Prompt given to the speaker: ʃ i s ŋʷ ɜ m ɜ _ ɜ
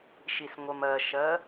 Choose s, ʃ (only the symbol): ʃ